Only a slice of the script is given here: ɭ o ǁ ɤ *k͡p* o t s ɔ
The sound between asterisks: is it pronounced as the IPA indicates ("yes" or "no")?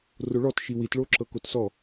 no